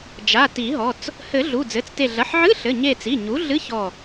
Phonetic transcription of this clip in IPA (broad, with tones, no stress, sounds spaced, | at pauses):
d͡ʒ a˩˧˩ t i˨˩˦ ɦ ɔ˩˧˩ t͡s | h ɘ˨˩˦ ɮ u˩˧˩ d͡z ɘ˩˧˩ t͡s t e˧˩ ɮ ɐ˩˧˩ ħ ʕ ɨ˧˥˧ ɬ ɘ˩˧˩ ɲ e˧˩ t͡s i˩˧˩ ɲ u˩˥ ɮ ɨ˧˥˧ ç ɔ˧˩